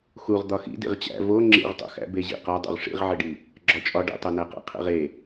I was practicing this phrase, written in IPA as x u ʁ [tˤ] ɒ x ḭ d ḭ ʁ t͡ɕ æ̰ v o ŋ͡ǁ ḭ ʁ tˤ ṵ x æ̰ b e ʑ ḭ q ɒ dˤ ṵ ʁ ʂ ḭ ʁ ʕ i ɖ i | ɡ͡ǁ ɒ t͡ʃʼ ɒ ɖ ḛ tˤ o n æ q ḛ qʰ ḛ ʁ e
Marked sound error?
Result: yes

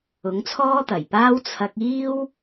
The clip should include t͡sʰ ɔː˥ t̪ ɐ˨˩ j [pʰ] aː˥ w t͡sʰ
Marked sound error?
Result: yes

